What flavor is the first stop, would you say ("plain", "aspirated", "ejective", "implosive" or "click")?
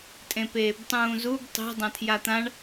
ejective